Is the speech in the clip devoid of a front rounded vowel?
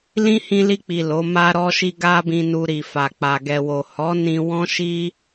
yes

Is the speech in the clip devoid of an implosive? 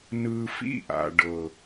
yes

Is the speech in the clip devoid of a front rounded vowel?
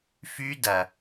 no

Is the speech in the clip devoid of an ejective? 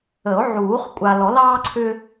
no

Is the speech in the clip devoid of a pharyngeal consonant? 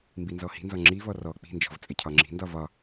yes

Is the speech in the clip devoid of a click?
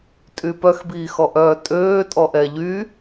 yes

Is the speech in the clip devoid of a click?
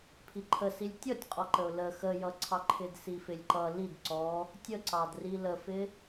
no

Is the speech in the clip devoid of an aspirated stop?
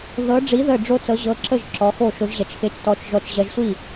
yes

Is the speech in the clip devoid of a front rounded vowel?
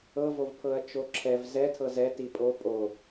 yes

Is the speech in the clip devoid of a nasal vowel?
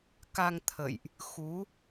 yes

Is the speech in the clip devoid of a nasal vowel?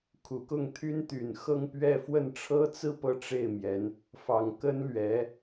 yes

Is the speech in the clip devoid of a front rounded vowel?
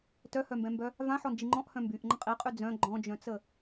no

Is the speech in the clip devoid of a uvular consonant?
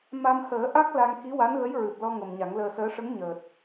yes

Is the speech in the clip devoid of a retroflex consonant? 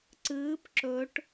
no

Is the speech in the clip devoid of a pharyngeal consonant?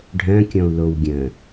yes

